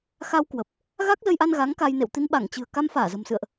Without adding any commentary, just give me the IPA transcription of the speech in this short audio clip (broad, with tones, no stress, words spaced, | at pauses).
xa˧w kwə˨˩p̚ | ɣa˦˥k̚zə˧jʔa˧n ɣa˨˦ŋka˧jnḛ˧˨w t̪i˧nɓa˧˩ŋt͡ɕɨ̤˨˩ə̯ ka˧mfaː˧˩zə̤˨˩msɨ̰˧˨ə̯ʔ